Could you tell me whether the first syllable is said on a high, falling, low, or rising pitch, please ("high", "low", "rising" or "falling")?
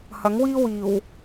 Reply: rising